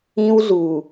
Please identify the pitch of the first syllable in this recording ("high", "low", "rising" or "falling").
high